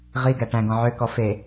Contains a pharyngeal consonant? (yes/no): yes